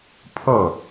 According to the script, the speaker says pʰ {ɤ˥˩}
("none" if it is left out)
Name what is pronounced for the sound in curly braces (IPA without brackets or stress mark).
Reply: ɤ˥˩